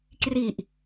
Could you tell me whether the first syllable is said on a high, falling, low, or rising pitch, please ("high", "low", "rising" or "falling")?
low